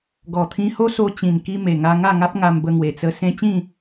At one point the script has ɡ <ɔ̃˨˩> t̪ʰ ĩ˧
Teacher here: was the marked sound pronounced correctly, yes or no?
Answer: no